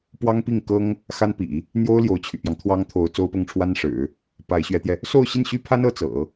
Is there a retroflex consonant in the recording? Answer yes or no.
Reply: yes